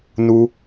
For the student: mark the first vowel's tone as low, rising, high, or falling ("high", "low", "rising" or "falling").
high